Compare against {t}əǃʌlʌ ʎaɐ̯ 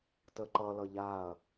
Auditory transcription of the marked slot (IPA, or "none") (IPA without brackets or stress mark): t